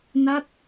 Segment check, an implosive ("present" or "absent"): absent